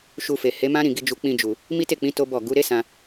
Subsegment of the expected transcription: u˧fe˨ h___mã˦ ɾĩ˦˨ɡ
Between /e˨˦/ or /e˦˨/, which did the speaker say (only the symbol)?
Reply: e˨˦